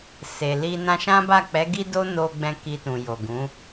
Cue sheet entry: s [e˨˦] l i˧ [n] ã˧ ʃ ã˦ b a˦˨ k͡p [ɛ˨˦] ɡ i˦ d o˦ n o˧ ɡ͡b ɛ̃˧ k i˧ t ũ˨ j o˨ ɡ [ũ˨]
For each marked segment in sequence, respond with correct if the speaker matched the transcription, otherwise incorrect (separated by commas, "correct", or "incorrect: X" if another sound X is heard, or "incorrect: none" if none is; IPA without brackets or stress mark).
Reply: incorrect: e˨, correct, correct, incorrect: ũ˨˦